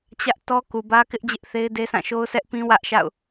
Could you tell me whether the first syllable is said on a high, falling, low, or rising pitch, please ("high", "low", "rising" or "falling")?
high